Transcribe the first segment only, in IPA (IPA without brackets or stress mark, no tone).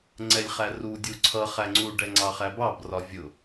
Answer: ŋ͡ǀ